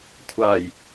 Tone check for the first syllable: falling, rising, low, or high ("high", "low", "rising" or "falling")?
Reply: low